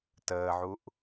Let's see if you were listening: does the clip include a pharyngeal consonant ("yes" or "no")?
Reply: yes